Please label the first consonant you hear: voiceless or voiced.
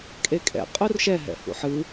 voiceless